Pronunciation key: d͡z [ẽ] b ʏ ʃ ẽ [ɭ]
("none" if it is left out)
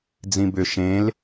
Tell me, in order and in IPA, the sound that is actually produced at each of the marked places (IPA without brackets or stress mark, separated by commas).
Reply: ĩ, l